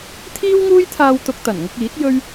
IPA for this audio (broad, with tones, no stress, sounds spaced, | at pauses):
t̪ʰ iː˥ w ŋ uː˥ j t̪ʰ aː˧ w t̪ ʊ˧ k̚ t̪ ɐ˨˩ n ŋ ʊ˧ k̚ iː˨˥ t̚ j ɵ˥ ɥ